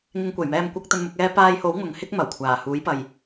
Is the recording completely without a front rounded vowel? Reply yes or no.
yes